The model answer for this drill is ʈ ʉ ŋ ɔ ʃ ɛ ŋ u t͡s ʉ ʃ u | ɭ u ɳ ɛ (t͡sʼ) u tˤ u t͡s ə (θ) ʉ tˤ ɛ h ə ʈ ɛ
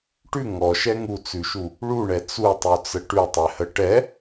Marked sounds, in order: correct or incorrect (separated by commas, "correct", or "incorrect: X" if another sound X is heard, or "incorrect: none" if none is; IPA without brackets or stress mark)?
incorrect: t͡s, incorrect: ʈ